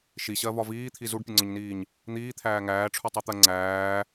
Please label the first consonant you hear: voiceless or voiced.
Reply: voiceless